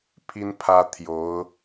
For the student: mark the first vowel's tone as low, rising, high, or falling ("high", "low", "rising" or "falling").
high